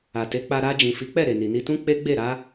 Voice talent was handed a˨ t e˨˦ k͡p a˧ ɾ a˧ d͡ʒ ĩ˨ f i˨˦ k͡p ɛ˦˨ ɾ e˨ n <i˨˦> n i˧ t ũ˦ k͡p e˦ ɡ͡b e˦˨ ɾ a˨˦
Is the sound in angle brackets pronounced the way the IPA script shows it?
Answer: no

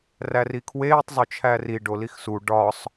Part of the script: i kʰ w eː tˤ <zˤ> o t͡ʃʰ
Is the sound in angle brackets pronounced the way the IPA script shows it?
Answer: yes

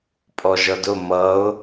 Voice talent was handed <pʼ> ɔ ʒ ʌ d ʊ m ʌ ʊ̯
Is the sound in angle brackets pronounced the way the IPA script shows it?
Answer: yes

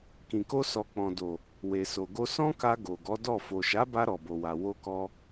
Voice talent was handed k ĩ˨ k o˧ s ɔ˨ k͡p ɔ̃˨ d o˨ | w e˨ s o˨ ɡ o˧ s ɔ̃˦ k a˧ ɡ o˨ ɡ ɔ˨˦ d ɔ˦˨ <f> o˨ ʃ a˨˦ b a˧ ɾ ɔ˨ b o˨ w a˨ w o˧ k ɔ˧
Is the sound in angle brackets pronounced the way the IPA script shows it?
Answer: yes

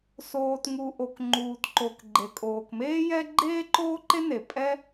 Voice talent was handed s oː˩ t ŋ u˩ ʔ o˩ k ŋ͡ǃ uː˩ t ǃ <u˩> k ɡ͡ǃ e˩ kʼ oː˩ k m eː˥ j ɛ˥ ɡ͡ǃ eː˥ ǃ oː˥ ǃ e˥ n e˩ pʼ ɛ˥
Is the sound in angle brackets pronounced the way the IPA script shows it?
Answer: no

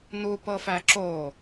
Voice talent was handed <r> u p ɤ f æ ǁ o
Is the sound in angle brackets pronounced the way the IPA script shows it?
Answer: no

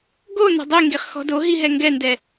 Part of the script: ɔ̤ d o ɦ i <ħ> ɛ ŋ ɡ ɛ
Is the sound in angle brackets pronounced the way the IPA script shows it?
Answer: no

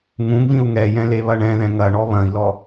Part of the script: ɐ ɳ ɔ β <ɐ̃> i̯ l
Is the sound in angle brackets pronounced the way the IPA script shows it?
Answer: yes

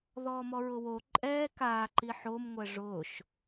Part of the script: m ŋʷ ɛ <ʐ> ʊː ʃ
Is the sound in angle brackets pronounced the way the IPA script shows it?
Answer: yes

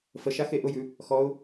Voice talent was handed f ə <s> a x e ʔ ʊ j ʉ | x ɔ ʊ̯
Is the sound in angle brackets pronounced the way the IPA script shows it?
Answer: no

